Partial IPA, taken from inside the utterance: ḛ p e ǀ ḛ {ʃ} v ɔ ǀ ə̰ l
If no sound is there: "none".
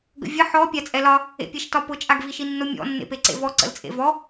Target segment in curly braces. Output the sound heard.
none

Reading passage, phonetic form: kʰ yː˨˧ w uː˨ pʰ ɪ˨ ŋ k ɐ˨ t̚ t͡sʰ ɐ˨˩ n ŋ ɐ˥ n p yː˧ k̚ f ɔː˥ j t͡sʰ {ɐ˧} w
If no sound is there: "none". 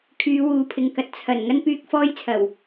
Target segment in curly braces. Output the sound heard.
ɐ˨˩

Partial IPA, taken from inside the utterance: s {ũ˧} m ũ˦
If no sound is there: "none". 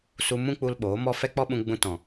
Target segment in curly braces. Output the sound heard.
u˧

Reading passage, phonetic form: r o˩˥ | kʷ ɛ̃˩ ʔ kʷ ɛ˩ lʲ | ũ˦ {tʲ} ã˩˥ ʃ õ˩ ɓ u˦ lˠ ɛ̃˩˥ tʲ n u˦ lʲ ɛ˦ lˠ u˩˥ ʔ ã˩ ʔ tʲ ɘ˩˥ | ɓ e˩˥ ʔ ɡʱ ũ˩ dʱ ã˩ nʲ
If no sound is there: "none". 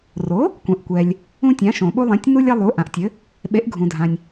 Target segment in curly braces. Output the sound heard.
tʲ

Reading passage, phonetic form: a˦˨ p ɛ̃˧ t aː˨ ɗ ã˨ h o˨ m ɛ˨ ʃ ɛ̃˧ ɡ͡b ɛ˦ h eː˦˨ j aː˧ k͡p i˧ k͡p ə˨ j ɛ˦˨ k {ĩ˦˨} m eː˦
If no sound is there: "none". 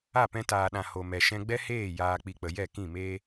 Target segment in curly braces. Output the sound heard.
ĩ˦˨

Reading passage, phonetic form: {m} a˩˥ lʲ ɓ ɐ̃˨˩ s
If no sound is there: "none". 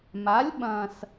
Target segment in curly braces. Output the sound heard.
m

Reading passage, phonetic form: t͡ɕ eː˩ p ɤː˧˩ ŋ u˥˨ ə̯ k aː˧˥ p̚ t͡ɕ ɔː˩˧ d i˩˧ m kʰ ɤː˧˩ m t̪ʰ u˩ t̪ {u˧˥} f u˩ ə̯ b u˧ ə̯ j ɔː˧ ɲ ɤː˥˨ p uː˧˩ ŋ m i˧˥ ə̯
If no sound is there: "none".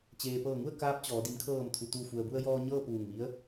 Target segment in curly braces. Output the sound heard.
u˧˩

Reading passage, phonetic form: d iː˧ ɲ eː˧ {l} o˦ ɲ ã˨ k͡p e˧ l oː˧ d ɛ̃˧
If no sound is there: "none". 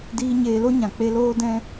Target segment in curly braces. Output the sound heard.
l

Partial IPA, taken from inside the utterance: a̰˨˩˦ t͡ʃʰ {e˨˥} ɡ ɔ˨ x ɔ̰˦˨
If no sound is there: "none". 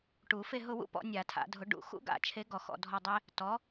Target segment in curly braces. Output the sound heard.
e˨˥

